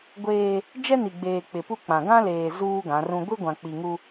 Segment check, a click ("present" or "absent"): absent